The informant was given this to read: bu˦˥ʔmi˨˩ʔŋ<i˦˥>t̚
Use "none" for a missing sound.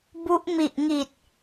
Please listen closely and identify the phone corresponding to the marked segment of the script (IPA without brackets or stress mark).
i˨˩